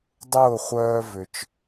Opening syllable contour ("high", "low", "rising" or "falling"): falling